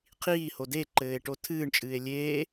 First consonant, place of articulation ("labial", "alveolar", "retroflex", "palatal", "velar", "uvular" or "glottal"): uvular